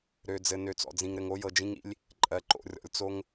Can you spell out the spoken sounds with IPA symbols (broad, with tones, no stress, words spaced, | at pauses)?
ɾø˨d͡zɘ˨ nø˨t͡sɔ̰˨d͡zĩ˨ŋɾɘ˨ŋ o˦jɤ˨d͡ʒĩ˦ŋḭ˦lʲ | ǃʼɜ˨ǃo̰˨rʲɔ̰˨lʲ t͡so˦ŋ